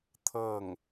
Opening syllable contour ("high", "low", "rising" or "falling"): falling